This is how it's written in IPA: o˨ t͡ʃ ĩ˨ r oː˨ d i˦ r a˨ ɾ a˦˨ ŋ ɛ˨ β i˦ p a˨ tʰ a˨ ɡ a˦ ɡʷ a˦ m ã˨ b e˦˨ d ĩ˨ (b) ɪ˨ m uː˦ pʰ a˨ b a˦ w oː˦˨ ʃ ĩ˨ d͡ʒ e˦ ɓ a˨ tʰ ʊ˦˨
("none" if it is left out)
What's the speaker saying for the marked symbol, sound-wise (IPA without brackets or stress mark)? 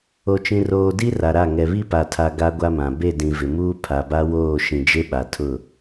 v